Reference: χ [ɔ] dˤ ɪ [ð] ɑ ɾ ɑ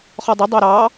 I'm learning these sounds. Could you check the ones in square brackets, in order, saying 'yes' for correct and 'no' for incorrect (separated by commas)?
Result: yes, no